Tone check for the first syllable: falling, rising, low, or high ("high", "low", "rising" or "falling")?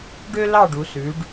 high